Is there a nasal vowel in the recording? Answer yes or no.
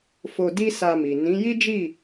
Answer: yes